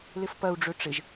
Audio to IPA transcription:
l ɪ f p ɐ u̯ ɖ͡ʐ ø ʈ͡ʂ ɪ ʒ

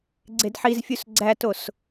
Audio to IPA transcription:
ɡ͡ǀ e d ħ i z fʲ u s ɡ͡ǀ æ t o s

